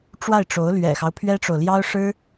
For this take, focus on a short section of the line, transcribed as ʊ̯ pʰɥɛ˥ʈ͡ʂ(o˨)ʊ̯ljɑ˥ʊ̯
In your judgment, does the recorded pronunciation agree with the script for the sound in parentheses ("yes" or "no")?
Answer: yes